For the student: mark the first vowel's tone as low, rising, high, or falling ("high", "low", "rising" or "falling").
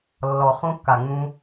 low